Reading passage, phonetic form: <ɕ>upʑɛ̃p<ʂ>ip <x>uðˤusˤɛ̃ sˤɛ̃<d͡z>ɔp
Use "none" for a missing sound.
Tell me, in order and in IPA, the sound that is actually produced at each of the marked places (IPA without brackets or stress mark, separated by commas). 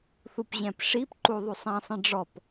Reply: θ, ʂ, ǃ, ɖ͡ʐ